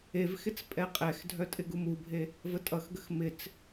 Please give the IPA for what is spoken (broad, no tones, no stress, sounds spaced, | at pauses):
e v x ɪ t͡s pʼ ɛ qʼ ɛ x dʱ œ tʼ ɪ ɡ u m u bʱ e | v ə tʼ ʌ x ɡ ə x m ɪ t͡s